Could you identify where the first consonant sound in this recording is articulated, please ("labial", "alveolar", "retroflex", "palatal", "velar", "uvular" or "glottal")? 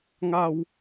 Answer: velar